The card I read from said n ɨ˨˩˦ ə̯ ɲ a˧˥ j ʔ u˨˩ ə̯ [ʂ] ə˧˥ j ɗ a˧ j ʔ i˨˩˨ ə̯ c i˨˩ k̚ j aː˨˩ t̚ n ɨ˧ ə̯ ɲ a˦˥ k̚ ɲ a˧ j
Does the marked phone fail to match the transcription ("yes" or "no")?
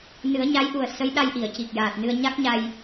yes